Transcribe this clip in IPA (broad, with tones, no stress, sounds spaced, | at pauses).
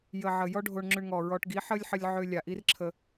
j ə˨ ʕ ə˨ j ɔ˦ ɖʱ o˧ ɳ ŋ͡ǁ ʏ˧ ɳ ŋ ɔ˨ ɹ ɔ˧ ʈ ɡ i˨˦ ħ ə˦ lʲ ħ ə˧ lʲ ʕ ʏ˧ lʲ a˨ ʔ i˦ r ǁʰ ə˧